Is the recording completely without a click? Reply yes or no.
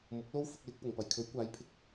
yes